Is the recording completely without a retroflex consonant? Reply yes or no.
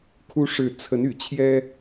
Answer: no